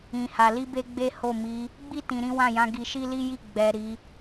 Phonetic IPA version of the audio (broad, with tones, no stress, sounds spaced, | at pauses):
ĩ˨ h a˨ l i˧ b e˧ ɡ͡b e˦ h o˦˨ m i˨˦ | ɡ͡b i˦ t ĩ˧ ɾ ĩ˦ w ã˦˨ j ã˨˦ ɡ i˧ ʃ i˦ l i˦ j i˦˨ ɡ͡b ɛ˨ ɾ i˨˦